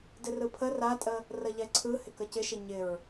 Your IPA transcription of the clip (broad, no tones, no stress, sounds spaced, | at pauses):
d ɪ r ɯ pʰ ə r a tʼ ə | r ə ʎ ɛ ǀʰ ɯ h ɪ k ə c ɪ ʃ ɪ ɲ ɪ ɹ